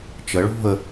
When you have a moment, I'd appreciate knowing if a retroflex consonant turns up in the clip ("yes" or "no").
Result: yes